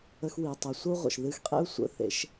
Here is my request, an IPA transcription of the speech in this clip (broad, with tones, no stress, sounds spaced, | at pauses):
ə˧ x w i˨ tˤ ɨ˨ sʷ ə˦ u̯ ʁʷ ə̰˨ ʃ ð ɨ˧ x qʼ ḛ˦ u̯ sʷ ə̰˨˦ θ ḛ˨˦ ʃ